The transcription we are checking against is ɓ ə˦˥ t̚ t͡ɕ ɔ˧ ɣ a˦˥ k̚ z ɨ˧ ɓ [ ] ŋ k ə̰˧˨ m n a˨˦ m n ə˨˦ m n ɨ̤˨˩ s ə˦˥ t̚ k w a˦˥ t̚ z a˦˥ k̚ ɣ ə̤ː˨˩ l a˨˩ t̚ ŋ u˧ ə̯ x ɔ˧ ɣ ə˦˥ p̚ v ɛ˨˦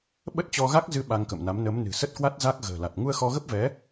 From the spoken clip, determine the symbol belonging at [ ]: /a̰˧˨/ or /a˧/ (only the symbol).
a˧